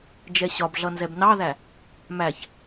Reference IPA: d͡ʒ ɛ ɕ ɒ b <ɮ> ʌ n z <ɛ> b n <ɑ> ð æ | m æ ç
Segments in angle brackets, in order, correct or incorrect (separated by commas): correct, correct, correct